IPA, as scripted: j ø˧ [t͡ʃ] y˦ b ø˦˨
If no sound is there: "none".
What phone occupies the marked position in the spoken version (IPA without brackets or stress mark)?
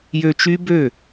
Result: t͡ʃ